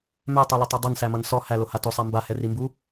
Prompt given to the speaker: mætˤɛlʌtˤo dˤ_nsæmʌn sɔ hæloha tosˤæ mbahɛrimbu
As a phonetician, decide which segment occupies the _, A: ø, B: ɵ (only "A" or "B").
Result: B